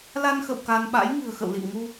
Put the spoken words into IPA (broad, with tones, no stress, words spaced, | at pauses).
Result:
la˧nxə̰˧˨w ka˧n ɓa̰˧˥j ŋɨ̤˨˩ə̯xə̰˧˨wlḭ˧˨wŋu˧